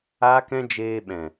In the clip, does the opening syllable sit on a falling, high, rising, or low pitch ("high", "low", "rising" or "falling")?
high